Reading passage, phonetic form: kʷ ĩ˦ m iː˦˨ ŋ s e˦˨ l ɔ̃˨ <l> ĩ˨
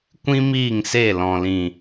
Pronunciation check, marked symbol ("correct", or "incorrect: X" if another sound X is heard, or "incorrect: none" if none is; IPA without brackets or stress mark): correct